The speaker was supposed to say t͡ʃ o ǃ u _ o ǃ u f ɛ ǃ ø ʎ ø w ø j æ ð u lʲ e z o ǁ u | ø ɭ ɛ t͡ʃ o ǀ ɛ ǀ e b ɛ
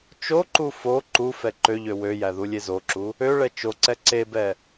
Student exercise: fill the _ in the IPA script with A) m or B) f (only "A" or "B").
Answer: B